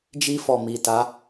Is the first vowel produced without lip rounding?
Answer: yes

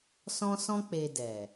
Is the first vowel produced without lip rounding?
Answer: no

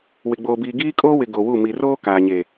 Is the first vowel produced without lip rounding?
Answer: yes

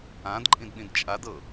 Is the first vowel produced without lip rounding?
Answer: yes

